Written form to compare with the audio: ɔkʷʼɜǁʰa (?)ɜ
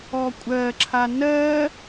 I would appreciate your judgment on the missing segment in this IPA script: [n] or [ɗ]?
n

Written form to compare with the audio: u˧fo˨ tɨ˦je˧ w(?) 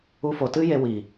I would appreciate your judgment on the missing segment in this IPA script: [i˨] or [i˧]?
i˨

